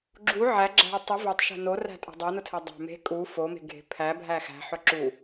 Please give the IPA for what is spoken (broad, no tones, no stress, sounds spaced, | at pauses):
ɡ͡ǁ u ʕ æ ɡ͡ǁ æ̤ ə̯ tˤ ʊ v œ tˤ ʃ æ̤ n o r æ̤ tʼ o̤ dˤ o n ʊ tʰ ɛ dˤ æ̤ m e̤ kʼ u f o m e̤ ɡʱ e̤ pʰ æ bʱ æ x æ̤ ħ œ ǁ u